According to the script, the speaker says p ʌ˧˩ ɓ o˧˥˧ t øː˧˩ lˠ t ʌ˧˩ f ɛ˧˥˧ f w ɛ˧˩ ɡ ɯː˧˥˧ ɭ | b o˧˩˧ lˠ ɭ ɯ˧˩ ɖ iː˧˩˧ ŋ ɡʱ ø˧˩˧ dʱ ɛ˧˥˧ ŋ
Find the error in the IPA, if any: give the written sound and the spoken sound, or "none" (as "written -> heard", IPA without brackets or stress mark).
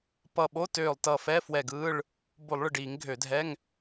none